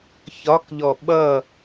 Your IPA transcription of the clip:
ç ɒ k ʎ ɔ ɓ ʌ

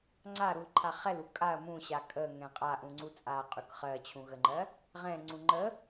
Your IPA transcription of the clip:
ŋ͡ǀ a ɾ u l ǃʰ a χ ɛ l u kʼ a ɐ̯ m ũ ɕ a kʼ ə ŋ ɛ̃ qʼ a ʔ ũ ŋ͡ǀ u t͡sʼ a qʼ ʉ k χ ɜ t͡ɕʰ ũ ɣ ə ŋ͡ǃ ɜ | ʁ ɛ̃ ŋ͡ǀ ũ ŋ͡ǃ ə

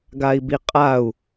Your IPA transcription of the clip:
ɡ a i̯ b i qʼ a u̯

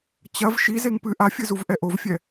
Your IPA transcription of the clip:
t͡ɕ ɐ v ʃ i z e ŋ p ɨ ʔ a fʲ ɨ z u v ʔ ɛ ʔ o v fʲ ɛ

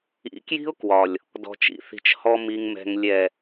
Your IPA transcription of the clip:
ḭ˨˦ k j i̤˦ ʊ̯ k w ɒ˨ lʲ | d ɔ̤˨ t͡ʃ ḭ˨ θ i̤˨ t͡ʃ h ɔ˨ m i˨ ŋ m ɛ̤˨ ŋ lʲ ɛ˨

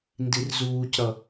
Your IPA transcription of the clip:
n d i r z uː c ɾ ʌ

